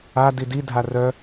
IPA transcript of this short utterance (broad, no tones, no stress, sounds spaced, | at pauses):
a d i d i dʱ a r œ